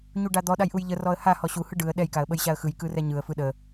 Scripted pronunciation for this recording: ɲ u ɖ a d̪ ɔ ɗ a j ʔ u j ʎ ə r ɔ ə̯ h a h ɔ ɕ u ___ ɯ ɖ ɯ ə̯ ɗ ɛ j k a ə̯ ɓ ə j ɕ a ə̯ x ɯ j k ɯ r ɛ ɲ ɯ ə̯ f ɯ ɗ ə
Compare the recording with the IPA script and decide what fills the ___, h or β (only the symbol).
h